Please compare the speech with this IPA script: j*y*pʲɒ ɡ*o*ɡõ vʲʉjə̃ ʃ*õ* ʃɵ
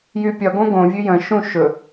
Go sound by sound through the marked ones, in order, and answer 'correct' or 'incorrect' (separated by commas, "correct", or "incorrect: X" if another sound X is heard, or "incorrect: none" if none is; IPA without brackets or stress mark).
correct, incorrect: õ, incorrect: ũ